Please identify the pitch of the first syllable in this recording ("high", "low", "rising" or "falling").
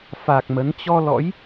low